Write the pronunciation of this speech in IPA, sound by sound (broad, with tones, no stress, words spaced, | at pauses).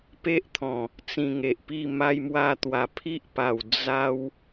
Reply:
pe˦ʔt̪ʰɔ̃˨˩ | t͡sĩ˧ŋe˨ʔpi˥˧ ma˦jmwa˥˧t̪wa˧ pʰi˦ʔpa˨˩w d͡za˦w